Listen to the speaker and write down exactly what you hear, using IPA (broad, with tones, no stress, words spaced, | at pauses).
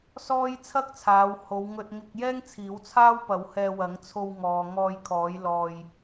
sɔː˥j t͡sʰɐ˥k̚t͡sʰaː˨˧w ho˨˧wŋɵ˧t̚ ŋɪ˧k̚jɛː˥ŋ t͡sʰiː˨˥wt͡sʰaː˥w pɐ˨˥whɛː˧ wɐ˨˥ŋ t͡sʰo˧wŋɔː˨ ŋɔː˧jkʰɔː˨˥jlɔː˧j